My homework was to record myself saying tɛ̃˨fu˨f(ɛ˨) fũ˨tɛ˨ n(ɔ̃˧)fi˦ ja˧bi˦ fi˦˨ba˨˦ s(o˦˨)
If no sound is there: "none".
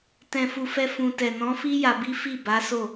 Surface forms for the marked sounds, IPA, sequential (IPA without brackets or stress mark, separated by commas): ɛ˧, ɔ̃˨˦, o˦˨